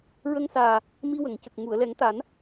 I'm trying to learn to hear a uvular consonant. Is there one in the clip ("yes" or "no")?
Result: no